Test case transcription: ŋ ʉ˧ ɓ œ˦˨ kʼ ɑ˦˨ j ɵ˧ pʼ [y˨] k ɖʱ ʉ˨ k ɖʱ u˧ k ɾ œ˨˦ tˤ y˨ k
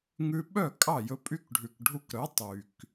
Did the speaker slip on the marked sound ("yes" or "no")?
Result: yes